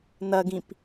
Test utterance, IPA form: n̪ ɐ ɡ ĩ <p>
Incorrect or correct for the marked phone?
correct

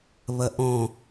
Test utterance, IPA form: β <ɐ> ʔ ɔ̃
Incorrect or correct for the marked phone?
correct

